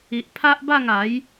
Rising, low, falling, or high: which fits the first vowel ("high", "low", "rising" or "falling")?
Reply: low